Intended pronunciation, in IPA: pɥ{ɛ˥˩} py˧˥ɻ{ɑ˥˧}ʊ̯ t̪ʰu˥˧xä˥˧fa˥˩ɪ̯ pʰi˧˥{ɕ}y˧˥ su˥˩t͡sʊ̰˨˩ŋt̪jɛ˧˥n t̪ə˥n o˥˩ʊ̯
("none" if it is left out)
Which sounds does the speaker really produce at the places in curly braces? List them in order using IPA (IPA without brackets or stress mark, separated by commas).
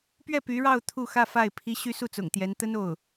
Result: ɛ˥˩, ɑ˥˧, ɕ